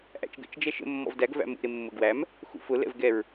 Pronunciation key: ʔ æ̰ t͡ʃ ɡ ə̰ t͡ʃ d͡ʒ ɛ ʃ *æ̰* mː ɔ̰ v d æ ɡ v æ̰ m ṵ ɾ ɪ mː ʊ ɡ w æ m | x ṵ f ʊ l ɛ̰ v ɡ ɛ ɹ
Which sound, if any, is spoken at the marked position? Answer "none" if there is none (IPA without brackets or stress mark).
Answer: ə̰